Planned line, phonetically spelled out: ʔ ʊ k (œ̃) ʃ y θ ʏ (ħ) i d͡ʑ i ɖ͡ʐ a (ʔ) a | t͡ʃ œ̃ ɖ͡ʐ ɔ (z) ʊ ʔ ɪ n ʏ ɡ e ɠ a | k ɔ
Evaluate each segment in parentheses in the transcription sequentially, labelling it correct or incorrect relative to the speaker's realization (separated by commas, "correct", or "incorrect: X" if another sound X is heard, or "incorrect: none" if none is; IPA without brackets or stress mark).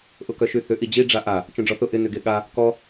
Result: incorrect: œ, incorrect: ʔ, correct, incorrect: θ